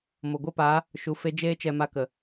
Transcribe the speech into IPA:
mo˨ɡʷɛ˦paː˨˦ | ʃu˧fe˦ d͡ʒeː˦t͡ʃɛ˧ma˧kə˨

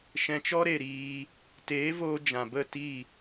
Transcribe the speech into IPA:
ʃɛ̃˧t͡ʃɔ˦ɾe˨ ɾiː˧ | teː˨˦voː˧ d͡ʒã˨bə˦˨ ti˦˨

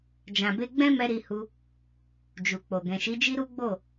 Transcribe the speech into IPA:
d͡ʒã˨be˧ɡ͡bɛ̃˦mɛ˧ ɾi˧hu˧ | d͡ʒu˨k͡po˨ ɡɛ̃˨ʃi˨˦d͡ʒi˦ ɾu˦ɡ͡bo˦˨

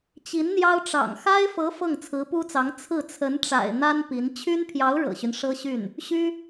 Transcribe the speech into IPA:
t͡ɕi˧˥nn̪jɑ˥ʊ̯ʈ͡ʂɑ̰˨˩ŋ xa˥ɪ̯fɤ˧˥ fɤ˥˩ŋt͡sʰɹ̩˧˥pu˥t͡sɑ˧˥ŋ t͡sʰɹ̩˥˩t͡sʰə˧˥nʈ͡ʂa̰˨˩ɪ̯ n̪a˥n pi˧˥n t͡ɕʰy˥npʰjɑ˧˥ʊ̯ ɻɤ̰˨˩ɕy˦n ʂɤ˥ɕy˥˩n | ɕy˥

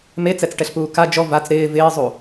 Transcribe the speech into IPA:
met͡sɛt͡sʈɛɬpuː ka d͡ʒɔ vat͡s ɾɪː vɪːzˤu

